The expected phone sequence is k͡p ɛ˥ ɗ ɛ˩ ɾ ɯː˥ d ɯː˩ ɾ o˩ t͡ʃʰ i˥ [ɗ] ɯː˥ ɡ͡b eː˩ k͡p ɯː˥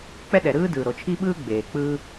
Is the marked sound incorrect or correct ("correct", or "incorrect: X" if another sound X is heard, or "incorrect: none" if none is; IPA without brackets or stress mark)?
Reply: incorrect: ɓ